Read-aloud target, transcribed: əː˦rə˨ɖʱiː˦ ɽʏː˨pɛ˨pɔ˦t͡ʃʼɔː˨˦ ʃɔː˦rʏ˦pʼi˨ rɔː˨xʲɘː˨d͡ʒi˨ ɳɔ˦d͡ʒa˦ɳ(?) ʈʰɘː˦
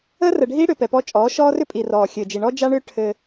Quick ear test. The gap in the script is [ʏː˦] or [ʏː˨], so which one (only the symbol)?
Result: ʏː˦